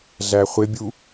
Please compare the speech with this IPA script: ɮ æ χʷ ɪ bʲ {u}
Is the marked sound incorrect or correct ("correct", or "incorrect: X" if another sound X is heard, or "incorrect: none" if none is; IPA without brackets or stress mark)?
correct